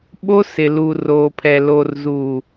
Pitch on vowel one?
high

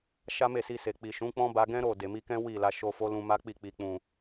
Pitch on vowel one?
high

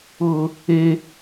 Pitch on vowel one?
high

